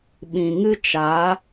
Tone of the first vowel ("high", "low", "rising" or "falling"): low